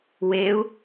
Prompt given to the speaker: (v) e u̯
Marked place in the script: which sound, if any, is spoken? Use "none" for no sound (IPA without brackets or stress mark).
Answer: w